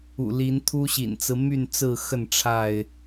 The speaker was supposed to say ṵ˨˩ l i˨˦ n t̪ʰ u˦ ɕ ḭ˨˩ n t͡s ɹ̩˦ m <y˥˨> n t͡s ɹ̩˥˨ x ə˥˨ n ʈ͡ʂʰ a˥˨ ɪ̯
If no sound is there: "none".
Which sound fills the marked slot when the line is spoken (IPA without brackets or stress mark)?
y˥˨